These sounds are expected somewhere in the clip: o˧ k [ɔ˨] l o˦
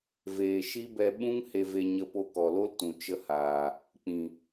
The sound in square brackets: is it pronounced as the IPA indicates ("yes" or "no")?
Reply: yes